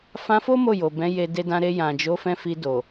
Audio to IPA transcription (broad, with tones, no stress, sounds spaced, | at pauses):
f ã˧ f o˦ m o˦˨ j o˨ b ɛ̃˨˦ j e˧ d e˧ d ã˧ ɾ e˧ j ã˨ d͡ʒ o˨˦ f ɛ̃˧ f i˧ d o˨